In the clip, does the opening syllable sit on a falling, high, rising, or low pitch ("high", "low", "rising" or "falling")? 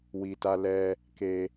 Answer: low